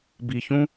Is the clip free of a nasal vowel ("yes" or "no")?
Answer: no